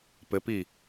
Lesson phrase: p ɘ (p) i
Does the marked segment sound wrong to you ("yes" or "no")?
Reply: no